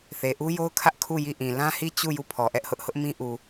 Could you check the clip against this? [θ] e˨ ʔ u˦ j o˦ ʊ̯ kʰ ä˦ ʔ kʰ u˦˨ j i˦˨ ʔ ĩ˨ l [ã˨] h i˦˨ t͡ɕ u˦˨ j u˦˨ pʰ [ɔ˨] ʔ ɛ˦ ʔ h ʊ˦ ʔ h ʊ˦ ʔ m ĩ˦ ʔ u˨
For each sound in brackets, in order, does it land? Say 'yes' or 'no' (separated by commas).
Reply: yes, no, yes